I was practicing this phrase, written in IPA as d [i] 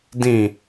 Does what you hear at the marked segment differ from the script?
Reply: yes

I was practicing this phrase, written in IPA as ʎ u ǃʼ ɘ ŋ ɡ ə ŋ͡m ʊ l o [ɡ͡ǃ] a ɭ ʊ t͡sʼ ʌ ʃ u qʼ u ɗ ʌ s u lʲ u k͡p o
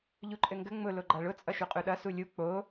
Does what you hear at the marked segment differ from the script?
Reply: no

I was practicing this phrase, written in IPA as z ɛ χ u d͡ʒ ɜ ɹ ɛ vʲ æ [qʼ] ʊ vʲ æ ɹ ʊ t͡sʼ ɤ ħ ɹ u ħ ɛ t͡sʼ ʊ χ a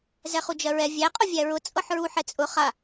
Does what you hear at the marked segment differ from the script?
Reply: no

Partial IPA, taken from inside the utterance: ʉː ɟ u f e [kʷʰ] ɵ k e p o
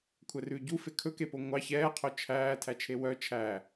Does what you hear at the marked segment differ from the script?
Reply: yes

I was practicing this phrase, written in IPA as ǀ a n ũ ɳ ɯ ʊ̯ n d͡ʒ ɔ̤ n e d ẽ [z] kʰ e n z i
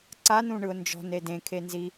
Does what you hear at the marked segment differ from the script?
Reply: yes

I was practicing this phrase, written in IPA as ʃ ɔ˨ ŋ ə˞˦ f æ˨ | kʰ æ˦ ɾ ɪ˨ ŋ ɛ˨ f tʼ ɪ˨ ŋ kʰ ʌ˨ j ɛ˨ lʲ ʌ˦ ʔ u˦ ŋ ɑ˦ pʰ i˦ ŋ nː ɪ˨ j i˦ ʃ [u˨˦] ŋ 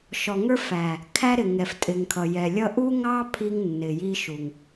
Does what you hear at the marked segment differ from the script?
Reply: yes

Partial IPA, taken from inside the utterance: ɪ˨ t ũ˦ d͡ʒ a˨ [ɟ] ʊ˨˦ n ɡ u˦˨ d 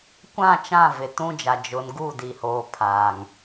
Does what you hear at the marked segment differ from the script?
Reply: yes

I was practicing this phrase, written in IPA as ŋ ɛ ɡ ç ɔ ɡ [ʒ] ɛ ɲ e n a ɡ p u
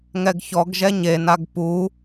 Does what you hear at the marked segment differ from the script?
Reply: no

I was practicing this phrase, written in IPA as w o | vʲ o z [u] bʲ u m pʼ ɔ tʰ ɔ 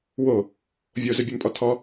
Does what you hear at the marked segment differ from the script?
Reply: yes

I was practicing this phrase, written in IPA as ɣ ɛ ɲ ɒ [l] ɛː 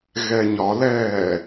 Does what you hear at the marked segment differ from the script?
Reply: no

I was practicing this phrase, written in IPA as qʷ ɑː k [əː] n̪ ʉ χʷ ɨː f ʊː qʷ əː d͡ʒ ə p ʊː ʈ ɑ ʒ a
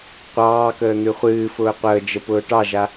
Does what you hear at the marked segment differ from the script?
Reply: no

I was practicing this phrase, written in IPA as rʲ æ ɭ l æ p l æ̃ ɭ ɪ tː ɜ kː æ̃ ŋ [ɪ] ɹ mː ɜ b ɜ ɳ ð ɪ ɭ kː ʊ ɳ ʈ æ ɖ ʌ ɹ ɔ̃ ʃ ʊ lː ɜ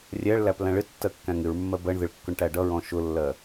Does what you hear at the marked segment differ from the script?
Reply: no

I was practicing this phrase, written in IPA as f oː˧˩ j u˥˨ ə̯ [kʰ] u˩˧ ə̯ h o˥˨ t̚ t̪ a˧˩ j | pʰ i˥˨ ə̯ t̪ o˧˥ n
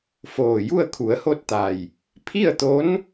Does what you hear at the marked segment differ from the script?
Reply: no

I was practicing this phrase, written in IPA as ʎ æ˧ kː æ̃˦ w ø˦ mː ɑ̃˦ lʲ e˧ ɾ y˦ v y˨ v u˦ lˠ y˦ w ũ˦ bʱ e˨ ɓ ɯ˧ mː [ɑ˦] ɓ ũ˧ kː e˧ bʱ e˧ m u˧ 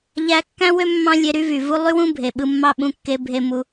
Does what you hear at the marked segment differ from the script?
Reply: no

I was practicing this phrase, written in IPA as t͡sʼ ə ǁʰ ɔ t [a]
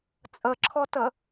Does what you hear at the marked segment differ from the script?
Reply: yes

